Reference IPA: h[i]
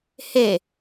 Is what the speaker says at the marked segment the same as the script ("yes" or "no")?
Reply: no